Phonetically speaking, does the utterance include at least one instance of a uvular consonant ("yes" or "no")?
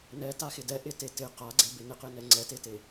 yes